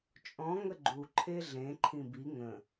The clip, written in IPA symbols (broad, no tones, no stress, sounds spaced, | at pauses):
t͡ʃʼ ɔ̃ ŋ ə ɡ͡ǃ u ǃʰ e ɮ ẽ ǃʰ ĩ b i ŋ ə̃